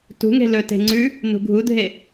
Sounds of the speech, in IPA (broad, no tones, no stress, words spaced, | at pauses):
tṳŋe̤ lɵ te̤ŋ͡ǀʉ | nṳɡʱudʱe